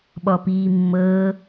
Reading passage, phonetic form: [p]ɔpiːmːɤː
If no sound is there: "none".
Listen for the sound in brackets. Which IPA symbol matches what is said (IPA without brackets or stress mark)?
ɓ